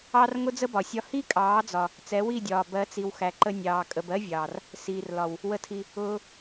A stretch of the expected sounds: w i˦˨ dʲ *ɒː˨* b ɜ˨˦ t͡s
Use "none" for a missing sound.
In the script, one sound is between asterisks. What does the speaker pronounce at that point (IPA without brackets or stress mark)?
ɒː˨